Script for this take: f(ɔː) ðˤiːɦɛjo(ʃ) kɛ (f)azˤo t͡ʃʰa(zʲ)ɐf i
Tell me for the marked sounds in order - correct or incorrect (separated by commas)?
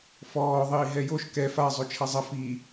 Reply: correct, correct, correct, incorrect